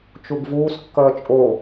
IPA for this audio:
t͡ʃuɡvuːs kːʌːt͡ʃʼo

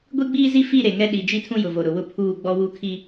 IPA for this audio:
ɡʷi˦ɡ͡biː˦zi˦ fi˦˨ ɾe˨ŋɛ˦ ɗi˨ d͡ʒi˦tʰũ˦jʊ˨vo˨ ɾʊ˨wʊ˦ pʰuː˦˨ɡ͡bɔ˦ wu˦kʰi˦

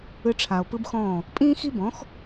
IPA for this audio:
ɯ˧ʈ͡ʂʰa˩o̯ pɯ˥bxɔ̃ː˥˩ | pʼĩː˥xi˥bɔ̃˩˥x

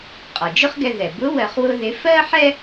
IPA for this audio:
qʼɒ˩d͡ʒʊ˥χɡɛ˧ðɛ˩ bʊ˧˥ wɜ˧χwʊ˥ðɪ˧˥ fɜ˥ħɛ˥

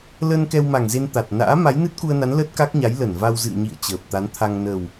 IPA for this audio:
lə˧n kɛ˧wma˨˩ŋze˧n t̪a˨˩t̚na̰ː˧˥ ma˨˦jnɨ˦˥t̚ku˧ə̯na˨˦n ləː˦˥t̚ka˦˥k̚ɲa˨˦j lə˧˩nva˧w zɨ̰˧˨ə̯ɲḭ˧˨ə̯ t͡ɕəː˨˩p̚t̪a˨˦nt̪ʰa˧ŋ nə˨˩w

